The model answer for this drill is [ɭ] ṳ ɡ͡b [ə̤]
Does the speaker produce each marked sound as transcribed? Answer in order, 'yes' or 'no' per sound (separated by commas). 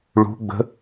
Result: yes, yes